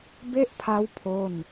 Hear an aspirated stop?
yes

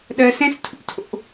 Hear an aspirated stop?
yes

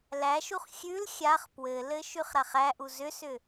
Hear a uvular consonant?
yes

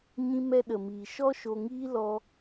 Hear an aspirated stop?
no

